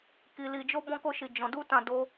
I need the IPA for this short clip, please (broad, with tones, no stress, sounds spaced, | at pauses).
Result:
k i˧ l i˧ d͡ʒ o˦ b ɔ̃˦ k o˦ ʃ i˧ d͡ʒ ɔ̃˧ d u˦ t ã˧ d o˧